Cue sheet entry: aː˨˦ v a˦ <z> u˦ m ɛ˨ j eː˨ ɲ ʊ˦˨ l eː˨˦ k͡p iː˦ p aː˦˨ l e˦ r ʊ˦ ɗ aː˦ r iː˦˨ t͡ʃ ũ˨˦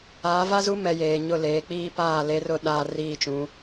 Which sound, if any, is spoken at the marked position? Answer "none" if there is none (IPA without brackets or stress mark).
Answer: z